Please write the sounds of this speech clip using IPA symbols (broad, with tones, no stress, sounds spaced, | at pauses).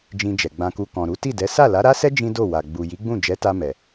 d͡ʒ ĩ˧ d͡ʒ ɛ˨ ɡ͡b ã˧ k u˧ k ɔ̃˨ ɾ u˨˦ t i˦˨ d ɛ˨˦ s a˦˨ l a˨˦ ɾ a˦ s ɛ˦ d͡ʒ ĩ˦ d o˦˨ w a˨ ɡ͡b u˨ j i˨˦ ɡ͡b ũ˦˨ d͡ʒ ɛ˨˦ t a˧ m ɛ˨